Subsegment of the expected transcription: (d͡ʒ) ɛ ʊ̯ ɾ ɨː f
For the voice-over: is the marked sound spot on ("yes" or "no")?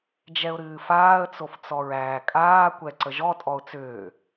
yes